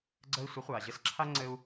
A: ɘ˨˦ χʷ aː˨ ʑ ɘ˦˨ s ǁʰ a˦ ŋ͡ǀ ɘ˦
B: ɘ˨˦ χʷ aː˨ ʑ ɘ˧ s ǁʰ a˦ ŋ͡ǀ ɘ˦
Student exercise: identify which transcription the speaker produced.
B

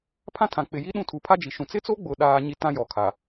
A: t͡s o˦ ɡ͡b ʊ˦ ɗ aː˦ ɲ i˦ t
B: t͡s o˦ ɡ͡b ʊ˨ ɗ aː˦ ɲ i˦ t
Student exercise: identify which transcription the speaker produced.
B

